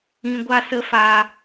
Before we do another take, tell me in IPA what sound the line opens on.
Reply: ĩ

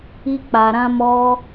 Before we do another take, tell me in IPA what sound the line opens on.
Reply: i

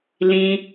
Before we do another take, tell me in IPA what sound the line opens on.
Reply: l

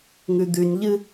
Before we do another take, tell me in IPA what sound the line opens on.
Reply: ŋ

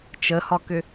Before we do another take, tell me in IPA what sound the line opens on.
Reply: t͡ʃ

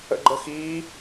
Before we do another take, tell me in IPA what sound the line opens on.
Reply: ə̰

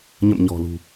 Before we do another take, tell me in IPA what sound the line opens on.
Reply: ɲ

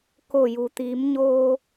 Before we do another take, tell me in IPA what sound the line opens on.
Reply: k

